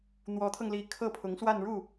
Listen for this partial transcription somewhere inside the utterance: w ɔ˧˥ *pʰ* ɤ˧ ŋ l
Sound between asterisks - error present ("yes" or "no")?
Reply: yes